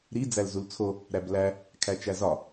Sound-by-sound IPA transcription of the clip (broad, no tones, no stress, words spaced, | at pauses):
ɾi d͡zælzult͡sʰo | ɾæblæ | kʰæt͡ʃæzɒ